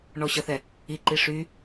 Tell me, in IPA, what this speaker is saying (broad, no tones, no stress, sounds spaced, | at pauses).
ɳ ɔ ɕ ʌ θ ɛ | i ǃ i ʂ y